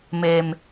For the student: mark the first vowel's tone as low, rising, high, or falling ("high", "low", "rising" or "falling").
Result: low